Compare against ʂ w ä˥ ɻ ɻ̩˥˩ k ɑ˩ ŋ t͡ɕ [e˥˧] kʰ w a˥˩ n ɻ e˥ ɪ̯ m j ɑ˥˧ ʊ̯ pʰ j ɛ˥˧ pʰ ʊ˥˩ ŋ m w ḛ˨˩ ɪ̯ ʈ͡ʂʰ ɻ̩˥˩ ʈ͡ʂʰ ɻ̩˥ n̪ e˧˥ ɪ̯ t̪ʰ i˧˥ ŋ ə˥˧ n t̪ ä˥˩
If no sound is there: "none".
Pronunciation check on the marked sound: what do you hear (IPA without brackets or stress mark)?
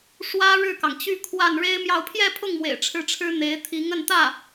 y˥˧